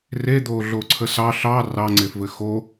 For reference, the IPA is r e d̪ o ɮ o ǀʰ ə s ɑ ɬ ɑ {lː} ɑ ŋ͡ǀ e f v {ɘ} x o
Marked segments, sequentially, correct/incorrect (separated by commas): incorrect, correct